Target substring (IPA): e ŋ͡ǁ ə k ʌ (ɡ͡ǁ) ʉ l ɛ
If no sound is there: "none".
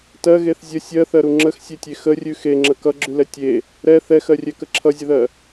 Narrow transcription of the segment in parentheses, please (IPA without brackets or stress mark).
ɡ͡ǁ